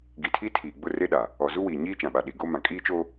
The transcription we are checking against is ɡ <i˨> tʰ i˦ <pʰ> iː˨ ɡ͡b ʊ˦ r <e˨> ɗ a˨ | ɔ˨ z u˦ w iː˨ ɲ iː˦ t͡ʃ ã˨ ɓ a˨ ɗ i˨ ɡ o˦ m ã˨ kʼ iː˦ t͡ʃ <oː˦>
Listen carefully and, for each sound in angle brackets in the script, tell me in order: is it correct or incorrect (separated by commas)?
correct, incorrect, incorrect, correct